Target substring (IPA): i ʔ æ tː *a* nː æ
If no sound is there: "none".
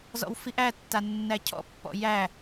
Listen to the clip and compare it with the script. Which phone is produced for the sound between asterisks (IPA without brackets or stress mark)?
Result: a